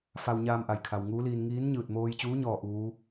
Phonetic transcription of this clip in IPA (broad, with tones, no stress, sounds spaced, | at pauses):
f a˧ w ɲ aː˧ m ʔ a˩ j kʰ a˩ w ŋ uː˧˥ l iː˧ n ŋ iː˧˥ n ɲ ɯː˧˩ t̚ m oː˧ j t͡ɕ uː˧˥ ɲ ɔː˥˨ ʔ uː˧˥